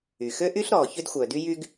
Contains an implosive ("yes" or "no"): no